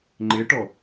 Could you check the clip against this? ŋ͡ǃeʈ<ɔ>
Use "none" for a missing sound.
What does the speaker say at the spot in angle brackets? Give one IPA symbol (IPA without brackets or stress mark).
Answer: ɔ